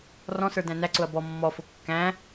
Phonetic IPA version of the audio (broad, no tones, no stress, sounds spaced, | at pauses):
r ɔ̃ s ə˞ d æ̃ n æ ǀ ʊ ɐ̯ b ɔ mː ɔ f ʊ kː æ̃